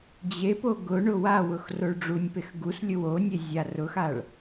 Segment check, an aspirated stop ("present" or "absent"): absent